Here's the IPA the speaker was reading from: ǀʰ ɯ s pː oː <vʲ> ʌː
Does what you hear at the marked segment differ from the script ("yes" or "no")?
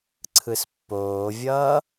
no